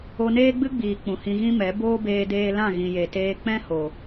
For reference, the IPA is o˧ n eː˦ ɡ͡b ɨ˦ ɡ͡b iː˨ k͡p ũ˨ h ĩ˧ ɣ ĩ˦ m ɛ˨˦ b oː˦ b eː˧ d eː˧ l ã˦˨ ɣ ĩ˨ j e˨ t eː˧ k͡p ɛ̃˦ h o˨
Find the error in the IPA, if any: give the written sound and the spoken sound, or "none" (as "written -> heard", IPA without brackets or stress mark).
none